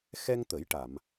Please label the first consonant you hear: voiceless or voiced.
voiceless